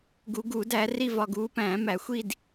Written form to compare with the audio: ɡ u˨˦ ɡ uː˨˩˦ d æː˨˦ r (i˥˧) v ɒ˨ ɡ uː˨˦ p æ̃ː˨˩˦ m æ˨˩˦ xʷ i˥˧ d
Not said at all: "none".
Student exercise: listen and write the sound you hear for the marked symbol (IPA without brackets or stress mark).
i˥˧